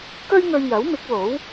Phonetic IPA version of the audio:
k ɵ˥ ɥ ŋ ɵ˧ ɥ j ɐ˨˥ w m ɪ˨˥ k̚ w o˨˥ w

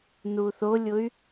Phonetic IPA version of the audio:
n u θ o lʲ ʊ y̯

